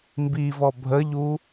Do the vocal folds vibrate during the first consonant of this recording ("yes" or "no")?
yes